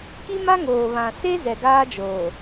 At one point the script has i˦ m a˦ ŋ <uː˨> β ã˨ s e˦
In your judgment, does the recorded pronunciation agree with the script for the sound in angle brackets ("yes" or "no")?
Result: no